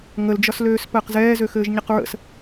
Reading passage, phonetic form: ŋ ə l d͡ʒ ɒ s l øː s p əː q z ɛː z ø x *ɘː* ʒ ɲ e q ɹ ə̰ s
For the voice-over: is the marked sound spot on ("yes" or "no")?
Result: yes